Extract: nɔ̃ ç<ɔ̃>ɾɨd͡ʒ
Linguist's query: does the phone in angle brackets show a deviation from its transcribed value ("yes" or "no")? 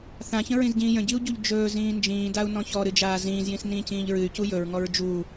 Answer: yes